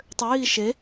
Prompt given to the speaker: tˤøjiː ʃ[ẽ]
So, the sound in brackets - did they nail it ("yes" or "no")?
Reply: no